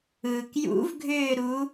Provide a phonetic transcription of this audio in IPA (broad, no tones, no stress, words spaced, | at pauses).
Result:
ɯːkjṵvɡʱʏːɾu